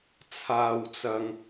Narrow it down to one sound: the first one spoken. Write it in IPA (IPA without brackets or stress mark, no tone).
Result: t͡sʰ